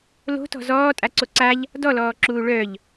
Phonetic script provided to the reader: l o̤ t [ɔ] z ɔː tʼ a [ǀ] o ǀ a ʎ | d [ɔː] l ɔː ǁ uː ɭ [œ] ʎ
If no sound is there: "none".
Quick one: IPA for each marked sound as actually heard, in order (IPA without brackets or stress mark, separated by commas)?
ɔ̤, ǀ, ɔ, œ